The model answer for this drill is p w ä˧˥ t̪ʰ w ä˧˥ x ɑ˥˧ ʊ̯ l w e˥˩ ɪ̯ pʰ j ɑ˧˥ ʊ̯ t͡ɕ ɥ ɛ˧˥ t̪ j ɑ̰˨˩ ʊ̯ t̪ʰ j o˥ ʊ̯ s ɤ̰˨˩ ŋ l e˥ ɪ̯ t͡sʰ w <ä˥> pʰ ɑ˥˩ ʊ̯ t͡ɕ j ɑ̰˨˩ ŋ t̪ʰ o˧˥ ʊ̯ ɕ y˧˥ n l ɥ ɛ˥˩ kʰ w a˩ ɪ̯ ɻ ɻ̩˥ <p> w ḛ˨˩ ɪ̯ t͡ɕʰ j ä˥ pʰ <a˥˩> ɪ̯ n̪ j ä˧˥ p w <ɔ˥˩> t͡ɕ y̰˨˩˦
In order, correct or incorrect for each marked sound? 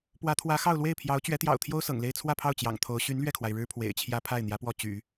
incorrect: ä˥˧, incorrect: pʰ, correct, correct

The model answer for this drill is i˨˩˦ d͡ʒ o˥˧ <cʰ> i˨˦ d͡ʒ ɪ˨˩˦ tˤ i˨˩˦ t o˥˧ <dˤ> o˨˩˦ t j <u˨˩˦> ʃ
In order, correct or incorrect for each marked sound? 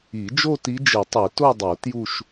incorrect: t, correct, incorrect: u˥˧

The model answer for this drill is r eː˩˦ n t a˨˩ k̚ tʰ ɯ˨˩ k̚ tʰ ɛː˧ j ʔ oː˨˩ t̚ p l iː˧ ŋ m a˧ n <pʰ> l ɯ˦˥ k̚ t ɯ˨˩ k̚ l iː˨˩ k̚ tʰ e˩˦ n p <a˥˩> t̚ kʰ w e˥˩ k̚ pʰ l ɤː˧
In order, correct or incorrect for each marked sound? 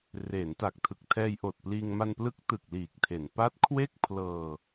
incorrect: p, incorrect: a˦˥

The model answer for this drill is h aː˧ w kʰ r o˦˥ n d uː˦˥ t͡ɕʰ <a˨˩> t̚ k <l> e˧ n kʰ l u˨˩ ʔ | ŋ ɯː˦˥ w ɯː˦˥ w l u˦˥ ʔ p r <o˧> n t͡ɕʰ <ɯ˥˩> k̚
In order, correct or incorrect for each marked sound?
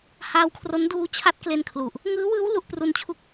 incorrect: a˦˥, correct, incorrect: u˧, incorrect: u˥˩

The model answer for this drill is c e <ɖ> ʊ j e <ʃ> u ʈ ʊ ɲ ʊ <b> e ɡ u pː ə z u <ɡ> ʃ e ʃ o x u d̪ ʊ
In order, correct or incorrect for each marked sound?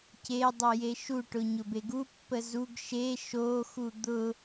incorrect: dˤ, correct, correct, correct

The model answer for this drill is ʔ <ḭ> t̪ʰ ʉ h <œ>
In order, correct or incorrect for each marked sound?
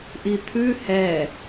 incorrect: i, incorrect: ɛ

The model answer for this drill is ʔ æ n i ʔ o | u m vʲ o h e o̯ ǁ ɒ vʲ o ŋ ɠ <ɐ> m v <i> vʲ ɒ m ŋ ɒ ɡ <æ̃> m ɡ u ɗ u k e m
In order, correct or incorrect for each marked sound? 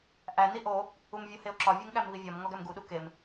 incorrect: æ, correct, incorrect: æ

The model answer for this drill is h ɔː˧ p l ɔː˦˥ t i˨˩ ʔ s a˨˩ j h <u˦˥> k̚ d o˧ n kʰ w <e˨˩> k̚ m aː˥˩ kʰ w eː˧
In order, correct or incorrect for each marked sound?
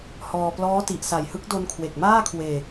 incorrect: ɯ˦˥, correct

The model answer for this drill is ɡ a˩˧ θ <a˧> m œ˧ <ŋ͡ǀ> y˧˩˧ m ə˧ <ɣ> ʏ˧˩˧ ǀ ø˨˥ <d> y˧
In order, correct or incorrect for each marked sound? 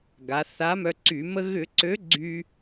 incorrect: a˨˥, incorrect: ǀ, correct, incorrect: ɡ͡ǀ

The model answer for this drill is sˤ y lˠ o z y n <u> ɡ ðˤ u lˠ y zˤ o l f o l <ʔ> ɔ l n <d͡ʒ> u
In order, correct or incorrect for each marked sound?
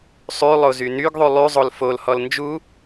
incorrect: y, incorrect: h, correct

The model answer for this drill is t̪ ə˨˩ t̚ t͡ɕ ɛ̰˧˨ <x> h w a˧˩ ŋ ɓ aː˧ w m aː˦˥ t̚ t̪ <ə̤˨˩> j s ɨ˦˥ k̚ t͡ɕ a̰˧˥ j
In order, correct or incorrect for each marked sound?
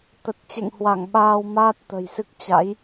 incorrect: ŋ, correct

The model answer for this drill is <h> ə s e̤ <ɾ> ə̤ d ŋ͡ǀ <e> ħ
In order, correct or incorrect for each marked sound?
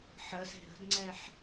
incorrect: ħ, correct, incorrect: ɛ

